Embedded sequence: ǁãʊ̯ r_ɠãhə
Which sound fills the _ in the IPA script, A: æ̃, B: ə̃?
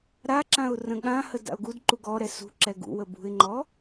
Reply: B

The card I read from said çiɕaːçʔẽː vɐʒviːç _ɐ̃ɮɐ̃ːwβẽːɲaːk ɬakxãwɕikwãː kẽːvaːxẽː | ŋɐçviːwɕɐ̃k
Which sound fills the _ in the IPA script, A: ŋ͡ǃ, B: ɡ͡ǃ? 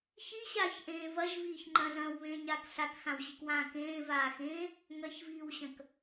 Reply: A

